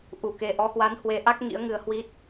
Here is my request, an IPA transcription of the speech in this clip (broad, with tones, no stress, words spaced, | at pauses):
ʔu˧˩ke˨˩ʔɔ˨˦hwa˨˦n hwe˨˦ʔa˦˥k̚ ŋḭ˧˥ə̯ŋɨ˧ə̯ hwi˦˥t̚